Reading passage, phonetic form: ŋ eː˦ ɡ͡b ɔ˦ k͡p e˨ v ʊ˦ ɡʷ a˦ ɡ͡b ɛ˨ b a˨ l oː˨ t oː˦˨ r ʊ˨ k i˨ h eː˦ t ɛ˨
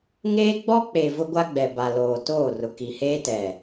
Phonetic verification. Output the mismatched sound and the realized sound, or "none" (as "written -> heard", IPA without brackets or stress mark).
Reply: none